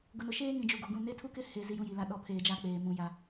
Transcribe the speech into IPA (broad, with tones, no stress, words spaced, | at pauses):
ɡʊ˨nʊ˨ʃeː˦ ŋĩ˨d͡ʒu˨ɡo˨ɡũ˦˨ ne˦tʰu˦kɪ˦ he˦ zi˦jũ˦ji˨la˦ ɗɔ˨˦ pʰeː˨ d͡ʒa˦k͡peː˨mũ˨˦ ja˦